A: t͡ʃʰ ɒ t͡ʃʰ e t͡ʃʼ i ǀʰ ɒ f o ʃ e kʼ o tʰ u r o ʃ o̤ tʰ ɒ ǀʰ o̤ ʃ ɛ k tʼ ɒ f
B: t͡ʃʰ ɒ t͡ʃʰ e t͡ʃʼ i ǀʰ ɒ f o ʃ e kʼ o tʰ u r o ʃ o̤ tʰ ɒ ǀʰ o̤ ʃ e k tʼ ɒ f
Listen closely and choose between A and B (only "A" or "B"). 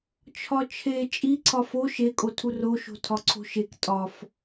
B